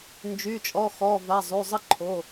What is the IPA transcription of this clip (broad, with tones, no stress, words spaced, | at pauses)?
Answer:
nd͡ʒy˩˧˩t͡ʃʼɔ˩˧˩xɔ˩˧˩va˩˧˩ zˤy˩˧˩zˤə˦˥ǃʰo˩˧˩